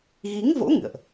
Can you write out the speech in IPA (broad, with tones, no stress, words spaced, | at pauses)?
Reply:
ɣi˨˦ŋvo̰˧˥ ŋɨ̰˧˨ə̯ʔ